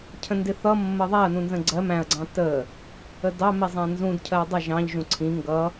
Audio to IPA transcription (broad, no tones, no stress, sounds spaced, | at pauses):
cʰ ə̃ n d ɪ θ ʌ mː ə ðˤ æ ɐ̯ n ũ n z ə̃ ɡ͡ǀ ɜ m æ̃ ɐ̯ ɡ͡ǀ ɑ̃ t ə | ə d ɑ m i zˤ æ̃ n z ũ d cʰ ɜ dˤ ʌ ʒ ɑ̃ ʎ ʒ ũ ǀʰ ĩ ŋ ɡ ʌ